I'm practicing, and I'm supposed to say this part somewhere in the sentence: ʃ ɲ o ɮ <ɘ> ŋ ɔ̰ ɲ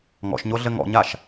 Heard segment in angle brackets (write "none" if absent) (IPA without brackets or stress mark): ɘ